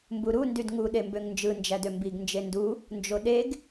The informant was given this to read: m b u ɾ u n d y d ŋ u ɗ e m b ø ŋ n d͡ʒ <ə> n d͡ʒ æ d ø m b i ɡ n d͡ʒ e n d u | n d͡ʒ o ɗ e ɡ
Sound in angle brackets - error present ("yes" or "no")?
yes